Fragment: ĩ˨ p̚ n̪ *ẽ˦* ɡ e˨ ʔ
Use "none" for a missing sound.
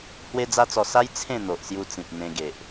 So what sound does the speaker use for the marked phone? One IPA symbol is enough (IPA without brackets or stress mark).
ẽ˧